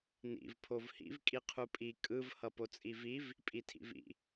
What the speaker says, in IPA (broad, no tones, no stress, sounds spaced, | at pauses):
n ḭ v pʰ o v h ḭ v kʼ i qʰ u pʼ i kʼ ɯ v h ʌ p o t͡sʼ i v i v | pʼ i tʰ ḭ v ḭ